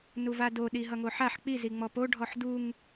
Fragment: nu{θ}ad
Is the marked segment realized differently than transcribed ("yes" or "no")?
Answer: yes